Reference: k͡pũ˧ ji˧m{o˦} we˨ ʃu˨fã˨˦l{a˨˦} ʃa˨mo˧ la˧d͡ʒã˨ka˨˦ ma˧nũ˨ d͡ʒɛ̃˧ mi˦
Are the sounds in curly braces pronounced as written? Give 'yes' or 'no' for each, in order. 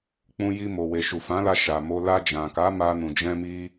no, no

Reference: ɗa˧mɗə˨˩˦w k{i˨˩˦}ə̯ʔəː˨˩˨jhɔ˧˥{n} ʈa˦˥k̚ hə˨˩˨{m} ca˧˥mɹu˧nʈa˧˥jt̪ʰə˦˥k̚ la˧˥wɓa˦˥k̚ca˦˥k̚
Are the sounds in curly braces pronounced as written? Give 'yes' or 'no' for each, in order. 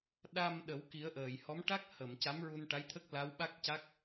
yes, no, yes

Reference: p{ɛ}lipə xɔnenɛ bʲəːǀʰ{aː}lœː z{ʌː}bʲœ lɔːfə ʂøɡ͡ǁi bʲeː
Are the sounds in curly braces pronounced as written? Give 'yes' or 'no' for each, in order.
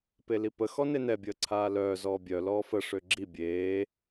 no, yes, no

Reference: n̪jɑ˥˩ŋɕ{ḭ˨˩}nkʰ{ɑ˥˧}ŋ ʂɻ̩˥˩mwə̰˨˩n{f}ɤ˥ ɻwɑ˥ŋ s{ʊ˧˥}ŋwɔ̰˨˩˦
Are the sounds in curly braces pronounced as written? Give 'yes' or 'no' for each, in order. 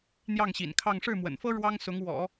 yes, yes, yes, yes

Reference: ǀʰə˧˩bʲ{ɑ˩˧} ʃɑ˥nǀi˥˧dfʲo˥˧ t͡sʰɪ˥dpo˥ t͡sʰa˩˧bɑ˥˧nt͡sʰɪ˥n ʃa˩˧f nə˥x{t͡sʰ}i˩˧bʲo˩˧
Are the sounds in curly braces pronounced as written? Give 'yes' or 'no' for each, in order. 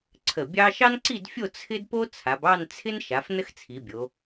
no, yes

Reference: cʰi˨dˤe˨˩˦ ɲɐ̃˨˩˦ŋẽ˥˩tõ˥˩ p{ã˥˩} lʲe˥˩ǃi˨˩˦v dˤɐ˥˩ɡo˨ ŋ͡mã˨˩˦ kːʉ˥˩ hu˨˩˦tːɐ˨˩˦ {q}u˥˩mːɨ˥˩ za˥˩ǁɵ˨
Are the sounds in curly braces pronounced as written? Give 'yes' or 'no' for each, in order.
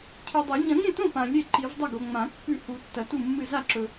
no, no

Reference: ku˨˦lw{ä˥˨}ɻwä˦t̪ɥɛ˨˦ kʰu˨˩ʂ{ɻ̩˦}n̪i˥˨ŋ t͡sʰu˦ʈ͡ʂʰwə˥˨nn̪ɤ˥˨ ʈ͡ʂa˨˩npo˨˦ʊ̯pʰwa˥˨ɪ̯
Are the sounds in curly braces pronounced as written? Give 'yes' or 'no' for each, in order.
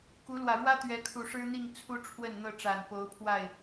no, yes

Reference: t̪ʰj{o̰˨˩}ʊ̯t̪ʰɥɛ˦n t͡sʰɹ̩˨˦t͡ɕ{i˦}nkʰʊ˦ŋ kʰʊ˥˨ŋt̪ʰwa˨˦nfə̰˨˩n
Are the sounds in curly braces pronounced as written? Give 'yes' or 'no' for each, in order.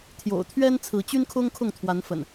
yes, no

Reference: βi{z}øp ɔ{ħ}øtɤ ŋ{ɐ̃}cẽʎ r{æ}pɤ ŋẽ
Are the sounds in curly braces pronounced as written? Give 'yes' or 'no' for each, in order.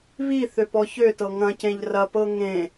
no, no, yes, no

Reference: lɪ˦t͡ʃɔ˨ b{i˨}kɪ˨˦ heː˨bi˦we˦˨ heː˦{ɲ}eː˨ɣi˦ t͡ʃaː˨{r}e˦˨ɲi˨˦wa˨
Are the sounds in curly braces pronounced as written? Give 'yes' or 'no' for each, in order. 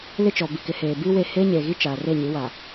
yes, yes, yes

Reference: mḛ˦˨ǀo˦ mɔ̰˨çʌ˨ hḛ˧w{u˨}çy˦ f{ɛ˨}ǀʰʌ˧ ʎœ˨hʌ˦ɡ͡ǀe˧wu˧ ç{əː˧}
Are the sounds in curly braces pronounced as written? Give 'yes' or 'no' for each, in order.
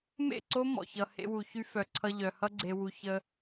yes, no, no

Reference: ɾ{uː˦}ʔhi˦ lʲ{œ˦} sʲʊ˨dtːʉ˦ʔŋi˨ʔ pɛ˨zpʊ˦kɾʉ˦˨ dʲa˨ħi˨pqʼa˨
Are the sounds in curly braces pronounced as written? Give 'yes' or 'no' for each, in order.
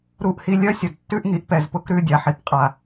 no, yes

